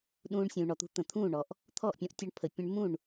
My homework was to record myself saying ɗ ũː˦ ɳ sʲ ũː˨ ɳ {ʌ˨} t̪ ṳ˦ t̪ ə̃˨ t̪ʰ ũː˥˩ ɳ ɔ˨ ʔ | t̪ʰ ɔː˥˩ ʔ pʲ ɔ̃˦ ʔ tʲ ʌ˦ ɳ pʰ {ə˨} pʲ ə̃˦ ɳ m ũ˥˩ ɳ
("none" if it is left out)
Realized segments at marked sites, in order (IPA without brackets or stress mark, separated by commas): ɔ˨, ə˨